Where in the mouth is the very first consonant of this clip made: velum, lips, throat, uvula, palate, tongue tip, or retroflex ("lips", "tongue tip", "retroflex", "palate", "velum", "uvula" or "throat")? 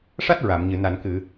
retroflex